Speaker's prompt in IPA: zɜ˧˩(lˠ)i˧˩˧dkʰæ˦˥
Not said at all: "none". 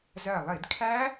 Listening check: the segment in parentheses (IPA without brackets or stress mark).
lˠ